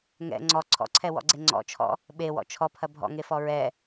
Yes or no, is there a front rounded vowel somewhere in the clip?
no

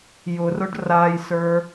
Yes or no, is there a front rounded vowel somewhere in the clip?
no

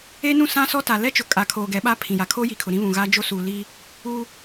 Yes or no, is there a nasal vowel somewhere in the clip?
yes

